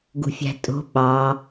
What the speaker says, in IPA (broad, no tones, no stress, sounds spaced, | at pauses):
ɡ ṳ fʲ æ̤ tʼ o̤ ɓ ɑ